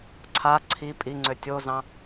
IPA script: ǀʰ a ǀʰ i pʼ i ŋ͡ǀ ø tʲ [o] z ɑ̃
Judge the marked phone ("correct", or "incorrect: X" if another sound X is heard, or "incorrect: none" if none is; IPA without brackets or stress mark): correct